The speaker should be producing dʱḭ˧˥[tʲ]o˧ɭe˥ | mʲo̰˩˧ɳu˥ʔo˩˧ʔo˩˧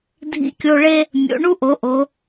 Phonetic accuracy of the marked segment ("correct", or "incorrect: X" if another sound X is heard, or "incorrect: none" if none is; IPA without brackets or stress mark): incorrect: kʲ